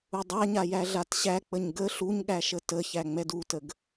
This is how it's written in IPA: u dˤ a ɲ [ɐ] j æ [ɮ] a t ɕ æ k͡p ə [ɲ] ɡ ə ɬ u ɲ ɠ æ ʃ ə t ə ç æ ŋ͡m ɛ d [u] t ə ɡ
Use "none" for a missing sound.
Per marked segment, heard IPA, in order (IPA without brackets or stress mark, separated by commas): a, ɮ, ɲ, u